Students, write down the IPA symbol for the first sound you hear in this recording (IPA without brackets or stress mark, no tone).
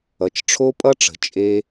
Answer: ʌ